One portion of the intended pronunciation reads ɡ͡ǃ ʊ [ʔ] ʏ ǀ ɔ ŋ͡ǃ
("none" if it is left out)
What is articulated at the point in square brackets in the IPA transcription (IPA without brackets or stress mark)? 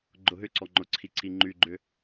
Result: ɦ